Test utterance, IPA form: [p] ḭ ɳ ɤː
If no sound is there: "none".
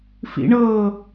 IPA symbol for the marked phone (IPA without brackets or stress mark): f